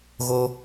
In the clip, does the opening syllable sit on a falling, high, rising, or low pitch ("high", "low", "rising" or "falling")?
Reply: high